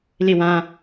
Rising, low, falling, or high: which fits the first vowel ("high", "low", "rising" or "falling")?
falling